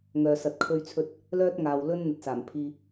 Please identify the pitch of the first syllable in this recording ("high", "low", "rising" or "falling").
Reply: low